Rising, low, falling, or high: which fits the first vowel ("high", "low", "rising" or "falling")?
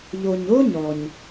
low